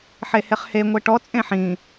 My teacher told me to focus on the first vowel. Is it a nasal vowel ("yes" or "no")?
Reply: no